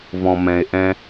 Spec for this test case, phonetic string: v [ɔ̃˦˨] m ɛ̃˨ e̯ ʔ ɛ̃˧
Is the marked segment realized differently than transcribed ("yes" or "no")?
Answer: yes